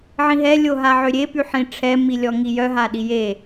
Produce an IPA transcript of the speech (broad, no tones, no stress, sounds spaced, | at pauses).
ʕ ĩ ɦ ɛ lʲ o ɦ a ʕ ø ɾʲ e p y ħ ĩ ʈ͡ʂʰ ɛ m i lʲ ɔ ŋ i j œ ɦ a ɗ i j e